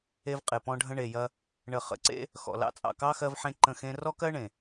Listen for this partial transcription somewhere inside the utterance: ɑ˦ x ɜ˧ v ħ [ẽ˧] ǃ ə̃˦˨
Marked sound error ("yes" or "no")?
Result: no